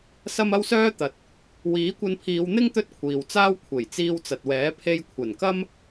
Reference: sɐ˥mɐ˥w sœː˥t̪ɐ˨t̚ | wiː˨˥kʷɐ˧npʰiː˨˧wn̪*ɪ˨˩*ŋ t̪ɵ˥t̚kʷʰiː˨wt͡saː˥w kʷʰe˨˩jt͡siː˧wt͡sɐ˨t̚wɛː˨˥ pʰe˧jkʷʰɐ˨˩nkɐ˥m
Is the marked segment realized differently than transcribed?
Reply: yes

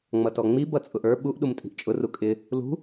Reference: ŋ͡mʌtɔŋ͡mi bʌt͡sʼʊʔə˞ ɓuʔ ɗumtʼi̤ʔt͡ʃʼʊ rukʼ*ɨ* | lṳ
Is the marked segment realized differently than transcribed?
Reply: yes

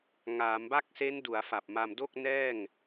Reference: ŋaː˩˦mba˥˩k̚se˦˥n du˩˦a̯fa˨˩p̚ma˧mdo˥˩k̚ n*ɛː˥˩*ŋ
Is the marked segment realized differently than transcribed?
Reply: no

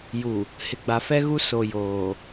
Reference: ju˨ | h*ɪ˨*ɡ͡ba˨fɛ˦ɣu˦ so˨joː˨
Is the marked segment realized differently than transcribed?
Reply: no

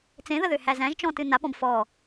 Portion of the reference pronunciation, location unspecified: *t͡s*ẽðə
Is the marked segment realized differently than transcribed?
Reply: no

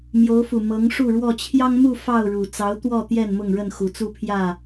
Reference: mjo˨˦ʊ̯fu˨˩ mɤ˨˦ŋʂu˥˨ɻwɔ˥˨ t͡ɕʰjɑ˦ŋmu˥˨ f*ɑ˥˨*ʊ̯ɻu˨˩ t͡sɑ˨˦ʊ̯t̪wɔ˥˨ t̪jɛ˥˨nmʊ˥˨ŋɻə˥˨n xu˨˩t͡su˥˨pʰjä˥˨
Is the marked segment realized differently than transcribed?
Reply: no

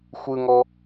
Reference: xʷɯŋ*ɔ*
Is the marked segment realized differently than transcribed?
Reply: no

